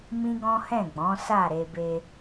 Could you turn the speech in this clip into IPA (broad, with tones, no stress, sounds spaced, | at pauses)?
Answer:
m ĩ˦ ɡ ɔ̃˦ h ɛ̃˦˨ ɡ͡b ɔ̃˨˦ s a˦˨ ɾ e˧ b e˧